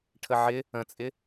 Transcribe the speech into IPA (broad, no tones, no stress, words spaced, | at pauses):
ʈʰəʕɪ | ə̃t͡sʼɪ